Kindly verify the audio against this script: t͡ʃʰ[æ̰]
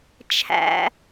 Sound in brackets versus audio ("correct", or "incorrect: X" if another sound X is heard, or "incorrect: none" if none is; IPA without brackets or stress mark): correct